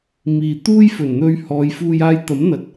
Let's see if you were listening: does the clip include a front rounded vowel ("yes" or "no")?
no